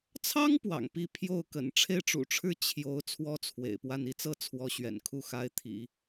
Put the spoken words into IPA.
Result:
t͡sʰ ɑ˥ ŋ p w ɑ̰˨˩ ŋ p i˥˧ pʰ j o˥˩ ʊ̯ k ə̰˨˩ n ʈ͡ʂʰ e˥˩ ɪ̯ ʈ͡ʂ ṵ˨˩ ʈ͡ʂʰ ɻ̩˥˩ t͡ɕʰ j o˧˥ ʊ̯ t͡sʰ w ɔ˥ t͡sʰ w ḛ˨˩ ɪ̯ p w a˥˩ n i˥ t͡s ɤ˥ t͡sʰ w ɔ˧˥ ɕ ɥ ɛ̰˨˩ n kʰ u˥˩ x a˧˥ ɪ̯ t̪ʰ ḭ˨˩˦

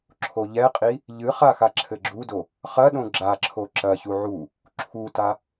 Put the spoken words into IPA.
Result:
ǁʰ o ʎ ɛ qʼ i | ʎ ɨ χ a x a ǁʰ ɘ ɡ͡ǁ u d o | χ ɐ ɗ õ ɡ͡ǁ a ǁʰ o ǁ ɐ ç u ʕ u | ǁʰ u t a

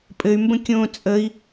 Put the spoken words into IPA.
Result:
pʼ ɘ y̯ m b ə̃ kʲ õː t͡sʼ ə i̯

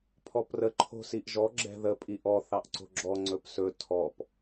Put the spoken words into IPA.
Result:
pʰ ɔ p r ə ǃʰ o̤ s i ʔ ʒ ɔ ɡ͡ǁ ɛ̤ ð ə pʼ i ʔ ɔ θ ɑ ʔ ǀ o̤ ɡ͡ǁ ɔ ŋ͡ǀ ɵ p s ɵ tʰ ɔ p

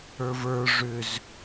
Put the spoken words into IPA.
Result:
ə˞ v ə˞ ʐ ʏ z

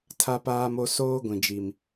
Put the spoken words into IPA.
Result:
tʰ a˦ p aː˦ m o˦ s oː˦ ɡʷ ĩ˨ d͡ʒ i˨ m

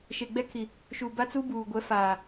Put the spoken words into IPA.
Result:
ʃ e˨ ɡ͡b ɛ˦ kʰ i˨ | ʃ u˨ b a˦ t͡s u˦ b uː˨ ɡʷ ɛ˨˦ f aː˨

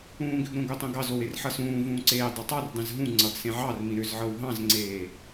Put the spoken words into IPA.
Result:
ũː ɡ ʏ ɡ ɾ õ ɡ o tˤ õ ɡ ɑ z o w e r ħ ʌ s ũː v ũː ǀ eː dˤ ʌ tˤ ɑ r dˤ ẽ z ɦ ũ ŋ͡ǀ ʌ ɡ s ẽ ʕ ɑ r m ĩ ɾ ʏ z ʕ ɤ w ɦ ɑ̃ z ŋ͡ǀ eː

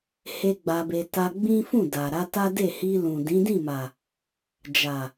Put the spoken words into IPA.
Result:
h e˦ ɡ͡b a˧ b e˧ t a˧ ɡ͡b ĩ˦ f ũ˦˨ d a˨ ɾ a˧ t a˦ d e˦˨ h i˧ l ũ˨ d ĩ˨˦ d ĩ˦˨ m a˨ | d͡ʒ a˨

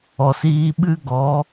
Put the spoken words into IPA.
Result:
ɔ˨ s iː˧ ɓ ɨ˦ ɡ ɔ˨˦

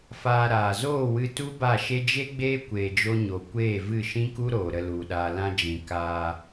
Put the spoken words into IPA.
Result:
f aː˧ ɾ aː˨ z oː˦˨ w ɨ˧ t u˦ b a˦˨ ʃ e˦ d͡ʒ e˦ ɡ͡b eː˦ kʷ eː˧ d͡ʒ o˦ ɲ o˧ kʷ eː˦˨ v ɨ˦˨ ʃ ĩ˦ k u˦ ɾ oː˨ ɾ ə˧ l u˨ ɗ aː˨ l ã˧ d͡ʒ ĩ˧ k aː˧

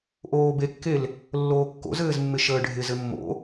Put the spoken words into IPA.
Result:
ʔ oː b e kː e l | lː oː kː o̰ z ɘː z mː ɪ ʃ əː ɖʱ ɪ z ɘ mː o̰

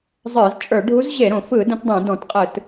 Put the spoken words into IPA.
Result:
zˤ ə˞˧˩˧ z t͡ʃʼ ə˞˧˩˧ ɖʱ u˧˥ z ʑ e˧˩˧ ɾ õ˧˩˧ f ɯ˧˩˧ d ə̃˧˥ t dˤ ẽ˧˩˧ d ɔ̃˧˩˧ t qʼ ɯ˧˩˧ t

